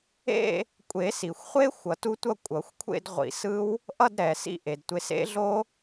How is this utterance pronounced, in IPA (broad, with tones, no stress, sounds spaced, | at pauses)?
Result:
ḛ˥˧ | kʷʼ e˨˩˦ s i˩ xʷ χʷ e˦˥ xʷ ʌ˨˩˦ t u˦˥ tʷ ʌ˥˧ kʷʼ ʌ˨˩˦ xʷ kʷʰ ḛ˥˧ d ʁʷ ḭ˨˩˦ s ɯ˦˥ w | ʔ ʌ˥˧ d ɾ ɛ˩ s ḭ˥˧ ʔ e˩ d tʷ e˨˦ s ḛ˦˥ ɮ o˦˥